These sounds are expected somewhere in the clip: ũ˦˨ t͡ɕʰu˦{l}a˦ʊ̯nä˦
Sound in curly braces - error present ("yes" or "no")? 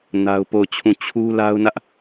no